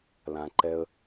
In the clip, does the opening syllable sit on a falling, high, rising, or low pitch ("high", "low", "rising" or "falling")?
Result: low